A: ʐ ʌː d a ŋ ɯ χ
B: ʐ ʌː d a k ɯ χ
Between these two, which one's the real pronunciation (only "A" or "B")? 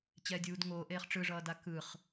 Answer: B